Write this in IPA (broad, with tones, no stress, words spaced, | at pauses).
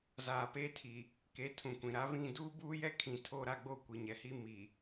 zaː˨pe˦tʰi˨ | ke˨˦tʰũ˨kʷĩ˨ ɾa˨˦βĩ˦˨ duː˦buː˦jɛ˦kʰĩ˨ tʰoː˦ɾa˦ɡ͡bo˦ kʷi˨ɲɛ˨hi˦ mi˨